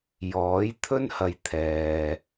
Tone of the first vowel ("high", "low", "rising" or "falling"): rising